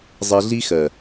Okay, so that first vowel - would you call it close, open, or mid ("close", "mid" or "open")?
mid